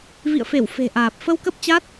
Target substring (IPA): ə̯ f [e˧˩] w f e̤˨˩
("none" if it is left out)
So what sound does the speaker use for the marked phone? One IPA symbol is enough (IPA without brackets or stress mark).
e˧˩